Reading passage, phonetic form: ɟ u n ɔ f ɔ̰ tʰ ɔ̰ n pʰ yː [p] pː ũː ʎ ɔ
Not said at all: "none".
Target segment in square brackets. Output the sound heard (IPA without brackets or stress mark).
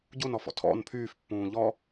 f